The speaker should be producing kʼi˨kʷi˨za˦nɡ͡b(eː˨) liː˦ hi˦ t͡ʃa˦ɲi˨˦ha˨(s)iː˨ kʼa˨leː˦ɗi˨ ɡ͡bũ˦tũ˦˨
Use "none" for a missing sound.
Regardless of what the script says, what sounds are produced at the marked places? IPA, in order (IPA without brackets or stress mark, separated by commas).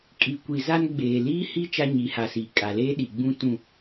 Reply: eː˨, s